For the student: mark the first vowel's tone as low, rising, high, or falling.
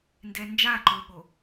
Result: low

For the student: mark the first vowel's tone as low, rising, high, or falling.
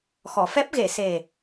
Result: low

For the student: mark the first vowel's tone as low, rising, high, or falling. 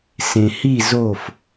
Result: low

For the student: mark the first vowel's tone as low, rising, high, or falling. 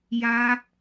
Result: high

